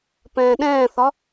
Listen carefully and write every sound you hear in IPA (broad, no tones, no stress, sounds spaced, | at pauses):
p ɛ̃ː ɗ ɛ̃ː θ ɒ